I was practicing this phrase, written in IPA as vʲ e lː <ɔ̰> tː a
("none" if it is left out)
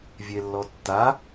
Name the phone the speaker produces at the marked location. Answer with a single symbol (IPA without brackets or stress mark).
ɔ